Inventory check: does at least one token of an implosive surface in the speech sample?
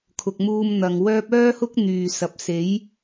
no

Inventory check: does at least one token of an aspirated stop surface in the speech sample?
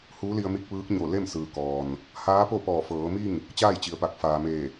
no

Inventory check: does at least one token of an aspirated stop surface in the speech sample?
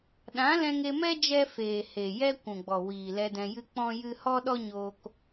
no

